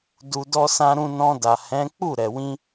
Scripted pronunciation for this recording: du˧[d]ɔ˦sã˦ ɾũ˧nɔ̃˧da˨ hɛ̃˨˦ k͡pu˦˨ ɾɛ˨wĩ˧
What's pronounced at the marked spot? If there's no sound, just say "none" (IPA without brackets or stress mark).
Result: d